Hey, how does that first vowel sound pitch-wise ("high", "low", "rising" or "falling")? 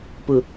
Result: low